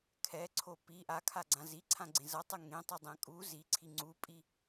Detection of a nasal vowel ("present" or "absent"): present